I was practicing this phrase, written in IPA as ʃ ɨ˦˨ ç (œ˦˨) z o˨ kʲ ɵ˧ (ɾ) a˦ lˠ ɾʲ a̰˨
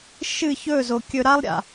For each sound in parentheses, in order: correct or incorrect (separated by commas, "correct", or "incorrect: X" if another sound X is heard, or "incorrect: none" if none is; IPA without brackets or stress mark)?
incorrect: ɵ˦˨, correct